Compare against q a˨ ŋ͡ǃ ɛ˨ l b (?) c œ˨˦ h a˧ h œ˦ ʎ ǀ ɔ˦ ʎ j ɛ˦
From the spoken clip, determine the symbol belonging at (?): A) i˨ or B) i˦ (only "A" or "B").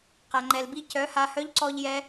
B